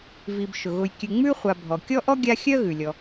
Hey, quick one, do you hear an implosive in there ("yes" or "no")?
no